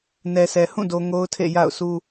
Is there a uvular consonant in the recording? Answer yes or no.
no